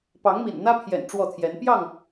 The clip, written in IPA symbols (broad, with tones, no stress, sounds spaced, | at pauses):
p ɑ˨˦ ŋ m ḭ˨˩ n n̪ ä˦ pʰ j ɛ̰˨˩ n ʈ͡ʂ w ɔ˥˨ t̪ʰ j ɛ˨˦ n p j ɑ˥˨ ŋ